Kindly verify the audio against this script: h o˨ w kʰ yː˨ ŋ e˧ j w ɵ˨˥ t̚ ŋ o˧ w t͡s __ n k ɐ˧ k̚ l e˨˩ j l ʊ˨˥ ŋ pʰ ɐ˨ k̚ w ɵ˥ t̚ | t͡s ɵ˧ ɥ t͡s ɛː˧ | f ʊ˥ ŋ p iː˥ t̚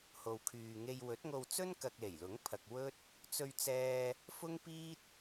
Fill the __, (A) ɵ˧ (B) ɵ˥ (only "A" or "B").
B